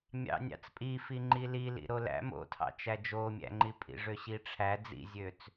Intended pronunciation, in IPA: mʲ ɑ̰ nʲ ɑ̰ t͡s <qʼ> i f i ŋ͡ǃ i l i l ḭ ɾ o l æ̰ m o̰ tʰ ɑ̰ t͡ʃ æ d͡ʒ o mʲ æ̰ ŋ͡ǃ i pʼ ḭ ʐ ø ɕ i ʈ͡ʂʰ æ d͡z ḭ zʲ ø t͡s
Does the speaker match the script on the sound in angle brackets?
no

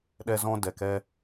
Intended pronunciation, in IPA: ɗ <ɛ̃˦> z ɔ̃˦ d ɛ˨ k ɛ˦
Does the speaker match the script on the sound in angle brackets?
no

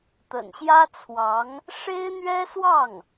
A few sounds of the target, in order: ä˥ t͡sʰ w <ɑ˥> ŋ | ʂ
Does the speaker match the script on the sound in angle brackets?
no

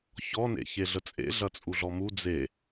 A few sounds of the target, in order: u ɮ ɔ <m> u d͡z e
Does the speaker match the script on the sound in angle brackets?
yes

